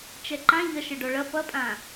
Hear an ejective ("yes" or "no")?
yes